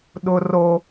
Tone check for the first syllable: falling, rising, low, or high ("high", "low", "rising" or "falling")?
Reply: high